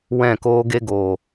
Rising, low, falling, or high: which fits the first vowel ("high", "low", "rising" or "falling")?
falling